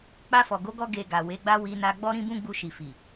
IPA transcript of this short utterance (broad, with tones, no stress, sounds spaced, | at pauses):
k͡p a˧ f ɔ˨ ɡ o˨˦ ɡ ɔ˧ ɡ e˧ ɡ a˨ w e˨˦ ɡ͡b a˦ w i˧ n a˧ ɡ͡b ɔ˦ ɾ ĩ˦ b ũ˦ ɡ͡b u˧ ʃ i˨ f i˨